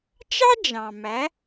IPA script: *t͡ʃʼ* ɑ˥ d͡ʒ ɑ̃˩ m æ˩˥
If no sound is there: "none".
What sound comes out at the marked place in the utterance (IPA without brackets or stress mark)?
t͡ʃ